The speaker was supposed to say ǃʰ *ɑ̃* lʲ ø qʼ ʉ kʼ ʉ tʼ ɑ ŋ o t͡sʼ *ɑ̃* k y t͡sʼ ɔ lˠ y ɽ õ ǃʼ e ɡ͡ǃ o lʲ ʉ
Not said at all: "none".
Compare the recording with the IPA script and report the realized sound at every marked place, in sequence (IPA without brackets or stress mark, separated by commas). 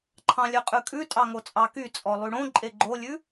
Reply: ɑ̃, ɑ